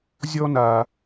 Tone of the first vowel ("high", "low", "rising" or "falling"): high